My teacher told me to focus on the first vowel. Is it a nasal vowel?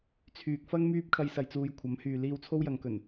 no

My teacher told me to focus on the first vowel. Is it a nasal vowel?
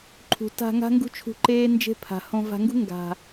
no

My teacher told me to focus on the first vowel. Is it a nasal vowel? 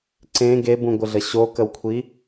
yes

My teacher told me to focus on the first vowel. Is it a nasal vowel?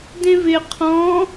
yes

